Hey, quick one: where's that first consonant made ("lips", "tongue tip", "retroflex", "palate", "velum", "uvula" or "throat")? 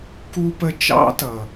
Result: velum